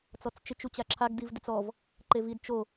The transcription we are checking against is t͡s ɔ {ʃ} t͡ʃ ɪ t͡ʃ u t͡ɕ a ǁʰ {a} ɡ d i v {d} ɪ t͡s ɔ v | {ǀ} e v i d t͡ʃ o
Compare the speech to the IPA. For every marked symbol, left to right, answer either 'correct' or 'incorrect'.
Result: incorrect: t͡s, correct, correct, incorrect: ǃ

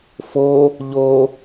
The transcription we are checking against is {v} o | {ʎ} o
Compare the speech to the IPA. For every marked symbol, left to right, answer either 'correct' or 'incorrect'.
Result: incorrect: f, correct

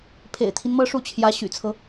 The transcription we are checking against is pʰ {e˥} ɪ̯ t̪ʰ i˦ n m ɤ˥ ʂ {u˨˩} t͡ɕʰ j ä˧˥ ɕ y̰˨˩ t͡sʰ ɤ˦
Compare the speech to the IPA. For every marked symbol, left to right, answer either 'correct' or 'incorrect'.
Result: incorrect: ḛ˨˩, incorrect: u˥˩

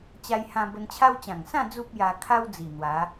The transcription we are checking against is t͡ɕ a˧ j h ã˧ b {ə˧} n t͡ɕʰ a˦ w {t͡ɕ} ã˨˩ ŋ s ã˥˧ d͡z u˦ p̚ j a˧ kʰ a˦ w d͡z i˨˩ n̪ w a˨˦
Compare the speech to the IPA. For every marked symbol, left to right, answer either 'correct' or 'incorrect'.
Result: correct, correct

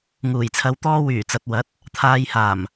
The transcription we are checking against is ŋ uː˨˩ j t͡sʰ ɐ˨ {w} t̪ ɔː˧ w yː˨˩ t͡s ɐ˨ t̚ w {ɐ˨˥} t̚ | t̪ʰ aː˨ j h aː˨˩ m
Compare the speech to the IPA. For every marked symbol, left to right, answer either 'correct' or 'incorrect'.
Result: correct, correct

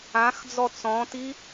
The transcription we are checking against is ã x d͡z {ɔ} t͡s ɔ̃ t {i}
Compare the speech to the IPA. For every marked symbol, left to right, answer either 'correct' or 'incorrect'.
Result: correct, correct

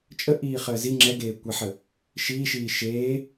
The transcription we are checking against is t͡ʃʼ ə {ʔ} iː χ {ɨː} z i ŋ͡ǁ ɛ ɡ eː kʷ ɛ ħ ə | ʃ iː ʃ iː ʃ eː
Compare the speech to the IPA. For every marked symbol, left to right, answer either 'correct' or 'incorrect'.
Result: correct, incorrect: əː

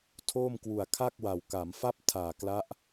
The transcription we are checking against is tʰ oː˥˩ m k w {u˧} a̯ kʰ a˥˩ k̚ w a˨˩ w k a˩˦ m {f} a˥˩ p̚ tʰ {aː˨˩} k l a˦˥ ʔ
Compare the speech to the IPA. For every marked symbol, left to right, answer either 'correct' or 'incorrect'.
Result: incorrect: u˨˩, correct, correct

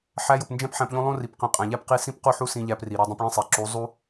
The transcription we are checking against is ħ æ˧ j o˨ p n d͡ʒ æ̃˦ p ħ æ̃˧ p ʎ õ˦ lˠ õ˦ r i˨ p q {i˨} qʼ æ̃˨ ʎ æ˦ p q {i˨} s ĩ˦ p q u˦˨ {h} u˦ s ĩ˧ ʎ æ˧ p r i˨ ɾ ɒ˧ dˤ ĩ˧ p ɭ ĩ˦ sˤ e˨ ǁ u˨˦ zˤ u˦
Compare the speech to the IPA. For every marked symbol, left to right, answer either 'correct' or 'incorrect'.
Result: incorrect: ĩ˨, incorrect: i˧, incorrect: ħ

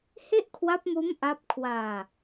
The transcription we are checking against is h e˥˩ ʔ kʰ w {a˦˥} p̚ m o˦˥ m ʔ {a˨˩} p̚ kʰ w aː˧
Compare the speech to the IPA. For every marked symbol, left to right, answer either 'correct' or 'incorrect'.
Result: correct, incorrect: a˦˥

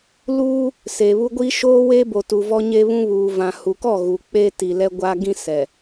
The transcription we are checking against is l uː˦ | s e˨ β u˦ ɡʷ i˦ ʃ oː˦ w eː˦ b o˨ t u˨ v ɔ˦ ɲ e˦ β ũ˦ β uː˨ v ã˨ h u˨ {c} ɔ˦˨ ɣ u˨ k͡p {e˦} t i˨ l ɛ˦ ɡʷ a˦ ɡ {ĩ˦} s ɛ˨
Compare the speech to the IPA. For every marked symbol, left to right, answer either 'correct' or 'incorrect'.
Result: incorrect: k, incorrect: eː˦, correct

